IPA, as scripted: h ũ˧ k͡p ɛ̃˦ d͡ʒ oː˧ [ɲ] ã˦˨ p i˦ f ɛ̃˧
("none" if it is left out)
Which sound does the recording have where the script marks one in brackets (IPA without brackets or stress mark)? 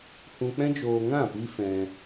ŋ